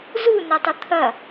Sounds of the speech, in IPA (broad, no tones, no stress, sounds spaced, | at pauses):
z u n ɐ tˤ ʊ t̪ʰ ɐ